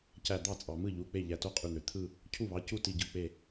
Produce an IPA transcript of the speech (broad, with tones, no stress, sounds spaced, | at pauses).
c æ˧˩ d̪ ɑ˥˩ t͡sʼ ɑ˩ m ɯ˥˩ ʎ u˩˧˩ k͡p e˥˩ ʎ æ˧˩ t o˥˩ qʼ y˧˩ n̪ ø˩ t̪ʰ ɯ˥˧ | cʰ u˥˩ β ɑ˩˧˩ c u˥˧ t i˧˩ ɟ ɯ˧˩ k͡p e˧˩